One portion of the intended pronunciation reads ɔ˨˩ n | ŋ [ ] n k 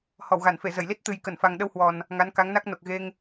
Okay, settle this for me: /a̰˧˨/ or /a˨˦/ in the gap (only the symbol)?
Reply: a˨˦